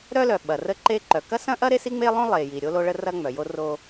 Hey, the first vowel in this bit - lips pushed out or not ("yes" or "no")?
yes